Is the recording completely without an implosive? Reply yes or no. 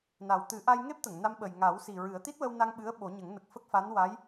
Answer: no